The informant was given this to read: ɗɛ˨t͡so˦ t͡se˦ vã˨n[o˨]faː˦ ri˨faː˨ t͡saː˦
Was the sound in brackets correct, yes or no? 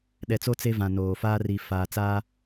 no